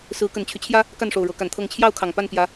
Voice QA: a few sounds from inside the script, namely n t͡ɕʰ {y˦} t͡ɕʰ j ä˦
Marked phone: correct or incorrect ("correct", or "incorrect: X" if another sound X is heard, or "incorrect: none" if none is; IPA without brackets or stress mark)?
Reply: correct